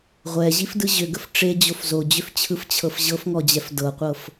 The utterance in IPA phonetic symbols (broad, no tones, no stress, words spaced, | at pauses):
ʁʷɛʑifdɯ ʑʏɡəf ʈ͡ʂed͡ʑof zod͡ʑʏft͡ɕʰɯft͡ɕʰɤf ʑɤfŋɔd͡ʑɛf dɤqʷɤf